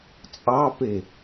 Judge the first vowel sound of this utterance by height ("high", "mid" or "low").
low